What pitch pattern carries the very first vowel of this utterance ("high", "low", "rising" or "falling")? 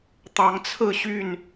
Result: rising